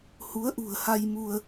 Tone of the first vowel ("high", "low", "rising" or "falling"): rising